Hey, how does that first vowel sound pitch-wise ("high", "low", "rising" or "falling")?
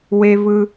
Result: low